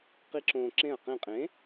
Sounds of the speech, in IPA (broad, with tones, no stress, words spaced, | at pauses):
qi˦˥ǁõː˧ ǁẽ˧˩ɐ̯qẽ˧˩qʼẽ˨˥